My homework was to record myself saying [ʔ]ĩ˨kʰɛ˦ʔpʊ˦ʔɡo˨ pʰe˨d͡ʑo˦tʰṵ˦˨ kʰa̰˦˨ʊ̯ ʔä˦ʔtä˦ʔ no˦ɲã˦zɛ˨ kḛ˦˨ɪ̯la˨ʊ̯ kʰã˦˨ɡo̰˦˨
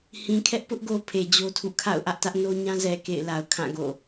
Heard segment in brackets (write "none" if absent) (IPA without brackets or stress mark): h